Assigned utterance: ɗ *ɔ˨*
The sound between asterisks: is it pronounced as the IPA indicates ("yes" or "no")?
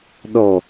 yes